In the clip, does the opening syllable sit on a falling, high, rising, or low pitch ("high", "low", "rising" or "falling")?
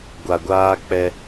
low